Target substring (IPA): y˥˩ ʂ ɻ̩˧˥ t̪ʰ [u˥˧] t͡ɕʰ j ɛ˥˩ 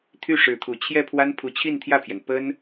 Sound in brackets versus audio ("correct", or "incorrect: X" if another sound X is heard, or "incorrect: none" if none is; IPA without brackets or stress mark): incorrect: u˨˩